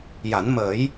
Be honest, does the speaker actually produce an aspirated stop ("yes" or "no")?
no